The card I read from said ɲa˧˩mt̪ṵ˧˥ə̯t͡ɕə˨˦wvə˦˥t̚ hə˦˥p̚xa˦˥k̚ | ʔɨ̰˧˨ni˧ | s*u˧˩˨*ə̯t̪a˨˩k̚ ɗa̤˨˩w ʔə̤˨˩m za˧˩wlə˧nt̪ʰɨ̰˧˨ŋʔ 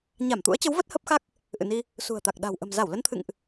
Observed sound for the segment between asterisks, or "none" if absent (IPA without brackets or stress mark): ṳ˨˩